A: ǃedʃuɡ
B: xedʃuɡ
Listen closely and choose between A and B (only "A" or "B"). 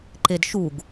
A